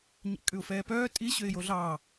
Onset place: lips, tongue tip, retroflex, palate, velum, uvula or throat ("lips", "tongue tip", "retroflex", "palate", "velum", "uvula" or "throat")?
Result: palate